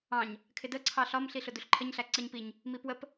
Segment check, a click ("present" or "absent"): present